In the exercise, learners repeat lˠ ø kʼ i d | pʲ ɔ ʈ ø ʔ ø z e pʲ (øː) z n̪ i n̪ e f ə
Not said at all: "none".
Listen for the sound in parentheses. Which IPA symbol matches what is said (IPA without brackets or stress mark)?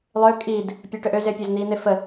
ø